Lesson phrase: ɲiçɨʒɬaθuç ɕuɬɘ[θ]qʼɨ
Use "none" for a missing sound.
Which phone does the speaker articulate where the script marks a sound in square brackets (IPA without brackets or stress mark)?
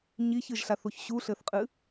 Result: θ